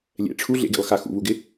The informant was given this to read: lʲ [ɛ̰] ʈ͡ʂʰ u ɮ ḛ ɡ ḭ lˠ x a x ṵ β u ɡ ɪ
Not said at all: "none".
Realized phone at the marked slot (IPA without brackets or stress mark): ɛ̰